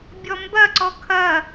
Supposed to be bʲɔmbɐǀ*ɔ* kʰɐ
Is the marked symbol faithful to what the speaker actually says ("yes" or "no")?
yes